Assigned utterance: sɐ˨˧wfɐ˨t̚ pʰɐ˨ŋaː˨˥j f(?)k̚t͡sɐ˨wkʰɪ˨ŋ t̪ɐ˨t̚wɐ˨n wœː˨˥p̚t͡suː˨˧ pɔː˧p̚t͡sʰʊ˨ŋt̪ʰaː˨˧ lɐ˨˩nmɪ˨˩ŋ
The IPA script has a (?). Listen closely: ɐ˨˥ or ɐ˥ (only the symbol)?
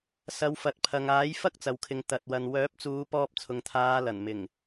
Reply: ɐ˥